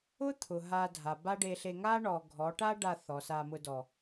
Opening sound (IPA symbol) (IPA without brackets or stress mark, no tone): ʊ